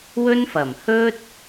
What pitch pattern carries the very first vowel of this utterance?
high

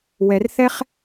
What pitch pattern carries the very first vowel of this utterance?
low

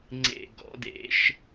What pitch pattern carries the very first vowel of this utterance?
low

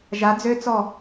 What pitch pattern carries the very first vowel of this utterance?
rising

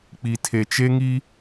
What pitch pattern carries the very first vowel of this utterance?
low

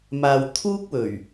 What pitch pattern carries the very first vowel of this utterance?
low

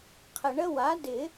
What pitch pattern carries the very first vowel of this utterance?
low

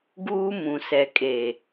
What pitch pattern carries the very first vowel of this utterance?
high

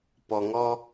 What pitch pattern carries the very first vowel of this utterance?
low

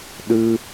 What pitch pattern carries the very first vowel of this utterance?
high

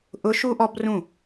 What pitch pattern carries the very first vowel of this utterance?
rising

